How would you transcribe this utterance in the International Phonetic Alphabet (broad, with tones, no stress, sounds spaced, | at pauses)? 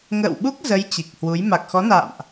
ŋ ə̰ː˧˨ w ɓ u˦˥ k̚ z ə˨˦ j t͡ɕ i˨˩ k̚ h w u˨˦ j m a˨˩ k̚ x ɔ˨˦ n a̰ː˧˨ m ʔ